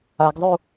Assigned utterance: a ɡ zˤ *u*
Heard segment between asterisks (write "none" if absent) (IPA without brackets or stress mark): u